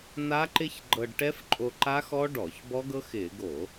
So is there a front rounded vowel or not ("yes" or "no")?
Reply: no